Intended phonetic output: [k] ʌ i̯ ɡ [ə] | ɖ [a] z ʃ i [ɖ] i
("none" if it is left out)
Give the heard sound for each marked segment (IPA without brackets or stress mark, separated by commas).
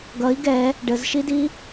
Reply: ɡ, ɛ, ə, d